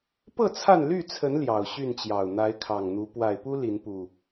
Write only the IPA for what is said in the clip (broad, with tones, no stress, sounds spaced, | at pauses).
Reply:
p ɤ˥˨ t͡sʰ a˥˨ n l y˥˨ t͡sʰ ə˨˦ n l j ɑ˨˩ ʊ̯ ɕ y˥˨ n t͡ɕ j ɑ˨˩ ʊ̯ n̪ a˨˦ ɪ̯ kʰ ɑ˨˩ ŋ n̪ u˨˦ p w a˨˩ ɪ̯ p u˦ l i˨˦ n p u˨˩